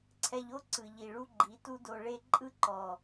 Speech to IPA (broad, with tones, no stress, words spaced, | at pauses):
ǀʰɛ˧ʎo˦ ǀɯ˨ʎi˨ ɭu˦ɡ͡ǃi˨˦tu˦ do˧ɭe˦ ǃʼɯ˦ǃɔ˨